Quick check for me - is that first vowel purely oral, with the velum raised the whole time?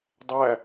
yes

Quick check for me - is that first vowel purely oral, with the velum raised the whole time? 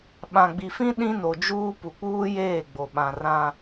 no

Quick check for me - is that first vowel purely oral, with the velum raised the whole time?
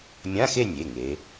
no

